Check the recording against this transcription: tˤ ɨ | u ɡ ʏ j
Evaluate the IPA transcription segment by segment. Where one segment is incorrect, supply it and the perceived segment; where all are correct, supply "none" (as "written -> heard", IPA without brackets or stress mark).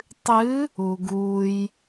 ʏ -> u